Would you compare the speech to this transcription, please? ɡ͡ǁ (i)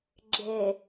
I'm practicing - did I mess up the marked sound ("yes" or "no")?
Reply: yes